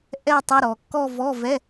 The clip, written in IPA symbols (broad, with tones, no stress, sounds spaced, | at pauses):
ʔ ɛ˥˧ tˤ ʌ˧˥˧ ɾ ɔ˩˧ kː ɔ˥˧ v ɔ˧˥˧ v ɛ˧˥˧